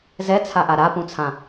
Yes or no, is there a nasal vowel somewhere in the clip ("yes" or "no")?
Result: yes